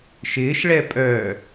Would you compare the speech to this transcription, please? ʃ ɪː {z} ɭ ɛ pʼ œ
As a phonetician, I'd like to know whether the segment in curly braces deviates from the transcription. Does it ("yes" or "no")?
yes